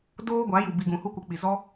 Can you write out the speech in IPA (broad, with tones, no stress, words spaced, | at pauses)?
doː˦ɡʷa˨˦ju˨ bi˧ ɡũ˨hu˦kʷə˧ k͡pi˨zɔ˦